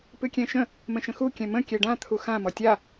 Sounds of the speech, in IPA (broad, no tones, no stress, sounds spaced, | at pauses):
p ɨ kʲ ɛ̃ ʃ ə̃ | m ə̃ ʃ ə̃ x u kʲ ɛ̃ m ə̃ kʲ ɛ ɖ ã t̪ʰ u x ã m ɔ tʲ a